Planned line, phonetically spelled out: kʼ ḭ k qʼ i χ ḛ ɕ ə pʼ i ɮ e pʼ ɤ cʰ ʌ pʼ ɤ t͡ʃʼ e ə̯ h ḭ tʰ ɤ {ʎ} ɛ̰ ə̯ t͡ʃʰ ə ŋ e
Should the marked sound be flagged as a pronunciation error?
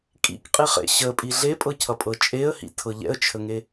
no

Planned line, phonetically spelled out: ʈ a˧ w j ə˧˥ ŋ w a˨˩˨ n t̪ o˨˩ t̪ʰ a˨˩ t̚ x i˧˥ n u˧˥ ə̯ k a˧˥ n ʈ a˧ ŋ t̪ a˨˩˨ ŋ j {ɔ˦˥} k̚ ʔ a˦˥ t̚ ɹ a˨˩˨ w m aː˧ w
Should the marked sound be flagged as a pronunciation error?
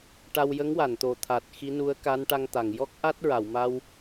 no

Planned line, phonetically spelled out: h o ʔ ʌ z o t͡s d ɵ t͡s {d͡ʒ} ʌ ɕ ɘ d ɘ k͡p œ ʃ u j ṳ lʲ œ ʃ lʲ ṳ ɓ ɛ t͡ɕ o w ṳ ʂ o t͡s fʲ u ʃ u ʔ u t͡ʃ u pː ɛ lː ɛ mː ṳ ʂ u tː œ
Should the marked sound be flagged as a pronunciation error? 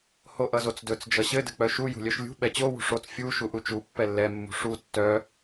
no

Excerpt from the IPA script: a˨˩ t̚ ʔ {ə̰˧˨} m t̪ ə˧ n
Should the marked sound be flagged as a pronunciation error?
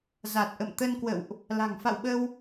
no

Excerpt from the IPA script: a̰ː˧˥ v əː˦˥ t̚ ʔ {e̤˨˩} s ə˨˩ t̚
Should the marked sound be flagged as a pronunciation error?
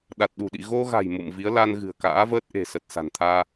no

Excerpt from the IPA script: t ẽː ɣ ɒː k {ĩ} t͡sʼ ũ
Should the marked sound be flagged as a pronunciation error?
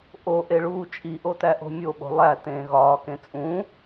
yes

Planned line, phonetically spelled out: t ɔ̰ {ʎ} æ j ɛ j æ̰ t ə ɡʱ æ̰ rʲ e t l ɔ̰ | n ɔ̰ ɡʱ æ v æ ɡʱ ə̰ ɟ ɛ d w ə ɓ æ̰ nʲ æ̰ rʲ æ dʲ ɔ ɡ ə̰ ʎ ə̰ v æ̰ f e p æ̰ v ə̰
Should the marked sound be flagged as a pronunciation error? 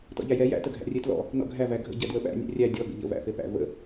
no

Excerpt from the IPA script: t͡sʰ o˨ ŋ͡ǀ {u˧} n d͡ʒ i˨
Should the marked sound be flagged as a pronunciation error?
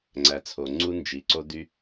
no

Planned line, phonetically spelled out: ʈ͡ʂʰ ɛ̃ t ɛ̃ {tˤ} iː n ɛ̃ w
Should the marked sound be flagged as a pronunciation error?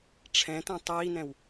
no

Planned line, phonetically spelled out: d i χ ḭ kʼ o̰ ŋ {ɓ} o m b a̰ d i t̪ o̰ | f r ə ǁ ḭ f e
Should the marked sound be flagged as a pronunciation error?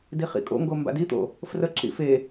yes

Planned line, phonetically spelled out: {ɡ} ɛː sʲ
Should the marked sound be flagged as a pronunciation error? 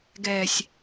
no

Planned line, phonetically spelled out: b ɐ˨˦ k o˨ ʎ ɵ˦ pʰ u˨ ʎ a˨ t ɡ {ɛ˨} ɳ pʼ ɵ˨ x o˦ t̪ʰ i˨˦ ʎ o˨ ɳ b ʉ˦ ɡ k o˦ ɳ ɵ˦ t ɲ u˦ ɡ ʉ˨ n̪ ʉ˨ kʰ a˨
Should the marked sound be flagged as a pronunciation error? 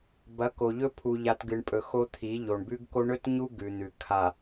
yes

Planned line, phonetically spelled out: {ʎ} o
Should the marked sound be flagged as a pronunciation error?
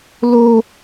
yes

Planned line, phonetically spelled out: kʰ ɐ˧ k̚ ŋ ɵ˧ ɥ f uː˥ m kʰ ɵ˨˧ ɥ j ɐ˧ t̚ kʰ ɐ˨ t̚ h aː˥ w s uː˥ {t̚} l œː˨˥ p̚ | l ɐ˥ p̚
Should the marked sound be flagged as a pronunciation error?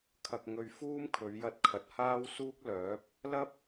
yes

